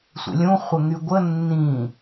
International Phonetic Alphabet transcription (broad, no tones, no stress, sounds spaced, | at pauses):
sʷ ə̰ lʲ ũ χʷ ə ŋ y ɡʷ ə nː ĩ